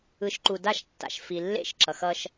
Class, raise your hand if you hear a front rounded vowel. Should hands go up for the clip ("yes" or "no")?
no